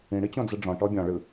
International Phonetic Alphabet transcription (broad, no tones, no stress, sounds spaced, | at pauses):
ĩ ɽ i t͡ɕ õ d͡z ɯ ɖ͡ʐ ɔ̃ ʈ ɔ bʲ ɔ̃ ɭ ɯ